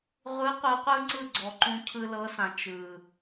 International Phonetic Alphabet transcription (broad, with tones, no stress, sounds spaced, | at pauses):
ʁʷ ɯ˨˦ qʷ ɯ˨ qʷ ɯ˧ ŋ͡ǀ ɯ˦˨ ɡ͡ǀ ɔ˨ ǃ ũ˧ cʰ ɯ˧ l ɤ˨˦ s ã˨ t͡ʃ ɯ˨